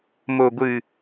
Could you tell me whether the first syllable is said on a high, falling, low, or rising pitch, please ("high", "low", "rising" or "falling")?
low